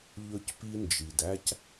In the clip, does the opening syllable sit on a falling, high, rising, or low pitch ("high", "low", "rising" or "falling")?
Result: high